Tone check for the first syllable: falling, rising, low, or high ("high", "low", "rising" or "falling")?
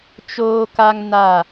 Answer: high